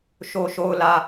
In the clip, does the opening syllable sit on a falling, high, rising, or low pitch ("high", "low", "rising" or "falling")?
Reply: low